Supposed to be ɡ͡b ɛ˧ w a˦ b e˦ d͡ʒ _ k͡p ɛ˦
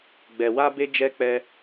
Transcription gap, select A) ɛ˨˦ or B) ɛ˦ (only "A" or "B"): B